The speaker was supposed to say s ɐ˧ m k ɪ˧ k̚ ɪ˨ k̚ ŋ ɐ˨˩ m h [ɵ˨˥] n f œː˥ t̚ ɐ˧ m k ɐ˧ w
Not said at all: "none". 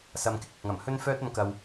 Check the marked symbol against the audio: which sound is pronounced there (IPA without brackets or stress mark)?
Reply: ɵ˥